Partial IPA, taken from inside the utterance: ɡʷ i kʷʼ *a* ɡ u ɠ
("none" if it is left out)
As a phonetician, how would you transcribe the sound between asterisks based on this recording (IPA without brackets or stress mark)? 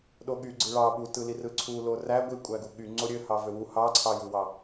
æ